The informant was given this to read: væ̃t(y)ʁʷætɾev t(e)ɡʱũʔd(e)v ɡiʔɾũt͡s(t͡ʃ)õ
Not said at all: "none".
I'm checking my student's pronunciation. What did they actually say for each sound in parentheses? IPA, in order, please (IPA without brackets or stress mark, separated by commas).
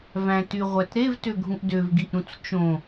y, ø, ø, t͡ʃ